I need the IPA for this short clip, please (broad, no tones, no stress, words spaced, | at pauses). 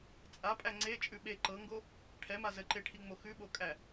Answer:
t͡sʼapʼæ ŋ͡ǀet͡ʃʼʉ ɓe ǃɤŋɡo | ʈʰɛma zəǃeʈʰiŋ͡mo xʉɓokʼæ